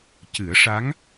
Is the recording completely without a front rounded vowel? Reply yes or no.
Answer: yes